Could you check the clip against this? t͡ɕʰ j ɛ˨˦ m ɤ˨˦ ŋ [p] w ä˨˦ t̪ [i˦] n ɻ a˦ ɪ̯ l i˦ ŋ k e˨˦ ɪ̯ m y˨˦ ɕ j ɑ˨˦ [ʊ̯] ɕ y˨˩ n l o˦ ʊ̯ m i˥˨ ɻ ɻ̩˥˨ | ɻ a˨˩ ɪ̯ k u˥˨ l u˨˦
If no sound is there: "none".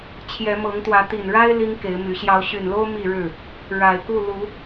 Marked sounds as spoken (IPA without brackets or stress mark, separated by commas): t̪, i˨˩, ʊ̯